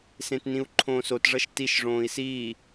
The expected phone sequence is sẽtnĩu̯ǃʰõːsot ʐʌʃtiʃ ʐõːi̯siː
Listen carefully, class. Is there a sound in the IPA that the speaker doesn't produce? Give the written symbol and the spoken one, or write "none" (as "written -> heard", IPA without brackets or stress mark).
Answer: none